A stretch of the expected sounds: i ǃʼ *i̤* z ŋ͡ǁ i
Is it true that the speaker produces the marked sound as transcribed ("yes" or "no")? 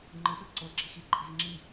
yes